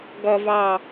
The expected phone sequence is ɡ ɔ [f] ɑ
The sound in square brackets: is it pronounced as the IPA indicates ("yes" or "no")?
no